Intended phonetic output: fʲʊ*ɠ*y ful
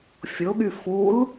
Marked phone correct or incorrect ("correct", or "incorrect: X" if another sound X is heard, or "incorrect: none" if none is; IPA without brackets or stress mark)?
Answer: correct